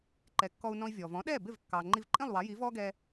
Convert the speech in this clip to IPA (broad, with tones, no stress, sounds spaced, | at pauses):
ǃ ɛ˩˥ kː ɔ˧ u̯ n ɔ̃˧ i̯ vʲ ɔː˩ v ɔ̃˩˥ ɗ ɛː˥˩ b ɪ˥˩ v kː ɑː˩ ŋ͡ǃ i˧ v ǃʼ ĩ˥˩ lˠ w ɑ˩˥ j i˩˥ v ɔː˥ ɡ ɛː˧